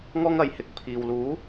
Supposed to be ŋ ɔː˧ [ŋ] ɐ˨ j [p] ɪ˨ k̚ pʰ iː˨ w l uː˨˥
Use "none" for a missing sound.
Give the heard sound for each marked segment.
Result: ŋ, h

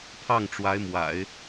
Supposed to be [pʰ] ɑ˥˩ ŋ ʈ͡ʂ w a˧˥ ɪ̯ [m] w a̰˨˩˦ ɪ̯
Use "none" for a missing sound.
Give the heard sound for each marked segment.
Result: pʰ, m

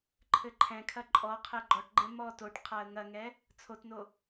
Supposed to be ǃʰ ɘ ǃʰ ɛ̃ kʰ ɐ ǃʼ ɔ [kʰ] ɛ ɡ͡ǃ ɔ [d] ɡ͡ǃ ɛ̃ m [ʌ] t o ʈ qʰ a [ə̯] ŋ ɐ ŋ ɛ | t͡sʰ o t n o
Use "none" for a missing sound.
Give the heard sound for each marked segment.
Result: qʰ, ʈ, ɔ, ə̯

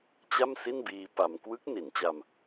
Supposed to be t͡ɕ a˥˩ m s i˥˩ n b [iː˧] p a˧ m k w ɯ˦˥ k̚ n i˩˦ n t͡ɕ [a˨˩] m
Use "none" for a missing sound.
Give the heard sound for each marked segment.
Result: iː˧, a˧

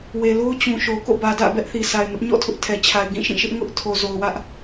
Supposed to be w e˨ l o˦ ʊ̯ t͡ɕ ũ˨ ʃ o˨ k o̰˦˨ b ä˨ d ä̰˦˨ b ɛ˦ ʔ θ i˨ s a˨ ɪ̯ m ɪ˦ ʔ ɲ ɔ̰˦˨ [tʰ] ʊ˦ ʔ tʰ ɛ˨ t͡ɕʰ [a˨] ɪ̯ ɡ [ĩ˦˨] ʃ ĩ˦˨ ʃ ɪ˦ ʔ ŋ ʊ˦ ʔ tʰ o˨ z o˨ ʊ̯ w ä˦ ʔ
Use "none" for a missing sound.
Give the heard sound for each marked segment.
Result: tʰ, a˨, ĩ˦˨

